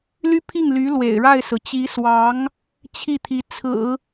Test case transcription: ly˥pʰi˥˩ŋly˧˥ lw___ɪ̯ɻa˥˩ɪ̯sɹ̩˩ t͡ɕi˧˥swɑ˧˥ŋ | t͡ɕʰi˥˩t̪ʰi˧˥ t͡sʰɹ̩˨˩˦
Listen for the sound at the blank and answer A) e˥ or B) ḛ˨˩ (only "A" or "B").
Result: B